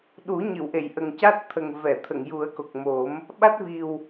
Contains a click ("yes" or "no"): no